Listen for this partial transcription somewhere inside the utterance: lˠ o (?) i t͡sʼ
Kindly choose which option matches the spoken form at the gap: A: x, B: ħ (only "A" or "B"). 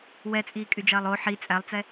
B